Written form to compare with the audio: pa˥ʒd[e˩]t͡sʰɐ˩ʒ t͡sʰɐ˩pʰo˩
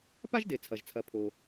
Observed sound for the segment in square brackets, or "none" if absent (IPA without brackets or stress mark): e˩